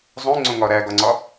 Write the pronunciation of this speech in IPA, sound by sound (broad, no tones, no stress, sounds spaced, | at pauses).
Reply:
zˤ ũ ŋ͡ǀ õ ŋ ɒ ɾ æ ɡ ɒ ŋ͡ǀ ɒ